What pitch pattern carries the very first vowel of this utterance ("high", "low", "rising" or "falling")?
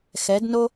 rising